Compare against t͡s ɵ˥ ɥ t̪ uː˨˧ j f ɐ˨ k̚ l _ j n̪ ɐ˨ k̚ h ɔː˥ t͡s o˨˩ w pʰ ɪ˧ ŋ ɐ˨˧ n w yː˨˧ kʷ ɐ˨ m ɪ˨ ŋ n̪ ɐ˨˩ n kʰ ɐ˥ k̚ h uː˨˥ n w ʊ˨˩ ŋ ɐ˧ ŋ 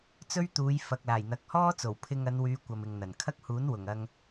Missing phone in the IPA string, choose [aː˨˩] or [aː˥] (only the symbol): aː˨˩